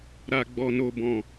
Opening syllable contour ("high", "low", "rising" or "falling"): low